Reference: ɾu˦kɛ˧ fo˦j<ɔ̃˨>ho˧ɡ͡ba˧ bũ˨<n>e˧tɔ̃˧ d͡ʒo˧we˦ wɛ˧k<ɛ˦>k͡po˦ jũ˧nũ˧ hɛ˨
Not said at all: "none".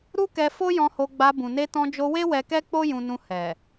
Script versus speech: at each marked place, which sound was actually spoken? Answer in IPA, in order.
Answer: ɔ̃˧, n, ɛ˦

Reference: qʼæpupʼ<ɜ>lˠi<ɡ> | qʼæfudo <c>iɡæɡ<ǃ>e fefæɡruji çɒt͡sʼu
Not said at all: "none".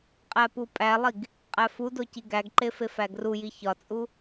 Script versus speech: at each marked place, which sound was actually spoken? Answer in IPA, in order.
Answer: æ, ɡ, c, ǃ

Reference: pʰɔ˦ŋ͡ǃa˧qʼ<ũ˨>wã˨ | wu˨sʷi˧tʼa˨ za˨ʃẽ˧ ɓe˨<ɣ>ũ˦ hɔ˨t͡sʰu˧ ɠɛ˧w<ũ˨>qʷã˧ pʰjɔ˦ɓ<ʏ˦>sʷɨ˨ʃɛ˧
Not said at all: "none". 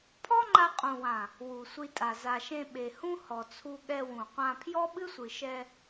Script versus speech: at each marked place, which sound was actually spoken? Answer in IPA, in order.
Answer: ũ˨, h, ũ˨, ɨ˦

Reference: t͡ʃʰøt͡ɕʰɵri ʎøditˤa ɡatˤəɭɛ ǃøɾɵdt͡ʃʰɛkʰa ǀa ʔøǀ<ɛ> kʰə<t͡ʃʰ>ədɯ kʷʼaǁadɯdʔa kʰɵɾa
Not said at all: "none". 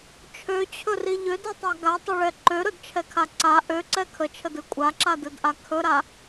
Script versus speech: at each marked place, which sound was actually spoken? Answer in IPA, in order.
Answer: ɛ, t͡ʃʰ

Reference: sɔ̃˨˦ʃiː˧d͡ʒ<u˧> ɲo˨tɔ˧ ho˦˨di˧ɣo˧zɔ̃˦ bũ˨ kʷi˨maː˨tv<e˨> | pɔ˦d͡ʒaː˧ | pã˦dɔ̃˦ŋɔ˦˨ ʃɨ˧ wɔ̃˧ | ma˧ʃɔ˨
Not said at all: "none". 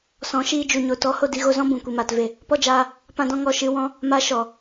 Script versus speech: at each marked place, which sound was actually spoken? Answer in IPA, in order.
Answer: u˨, e˨

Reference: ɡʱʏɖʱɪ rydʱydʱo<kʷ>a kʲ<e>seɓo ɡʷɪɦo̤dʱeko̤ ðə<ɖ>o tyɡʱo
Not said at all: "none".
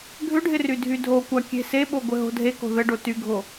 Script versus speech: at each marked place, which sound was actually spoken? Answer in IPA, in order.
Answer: kʷ, e̤, ɖ

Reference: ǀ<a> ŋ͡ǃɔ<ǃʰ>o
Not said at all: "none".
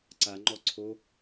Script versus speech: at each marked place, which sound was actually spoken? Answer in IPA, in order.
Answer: a, ǀʰ

